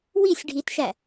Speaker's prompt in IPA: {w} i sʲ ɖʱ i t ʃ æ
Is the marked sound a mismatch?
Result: no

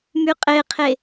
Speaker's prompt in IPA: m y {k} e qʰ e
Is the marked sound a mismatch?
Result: yes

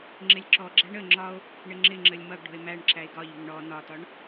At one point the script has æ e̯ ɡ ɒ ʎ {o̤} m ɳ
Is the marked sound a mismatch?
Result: yes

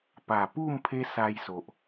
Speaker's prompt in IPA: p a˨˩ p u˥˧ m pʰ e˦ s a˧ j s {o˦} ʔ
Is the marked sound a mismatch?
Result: yes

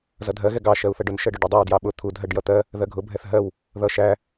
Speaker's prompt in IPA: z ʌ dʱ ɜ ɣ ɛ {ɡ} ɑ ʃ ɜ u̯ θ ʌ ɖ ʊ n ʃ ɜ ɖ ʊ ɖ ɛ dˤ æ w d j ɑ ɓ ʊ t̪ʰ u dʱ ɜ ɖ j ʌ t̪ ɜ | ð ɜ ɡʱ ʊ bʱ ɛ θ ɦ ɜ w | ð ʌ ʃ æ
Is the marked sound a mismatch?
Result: no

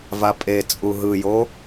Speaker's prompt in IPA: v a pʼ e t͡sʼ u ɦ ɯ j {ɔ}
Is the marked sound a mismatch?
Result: yes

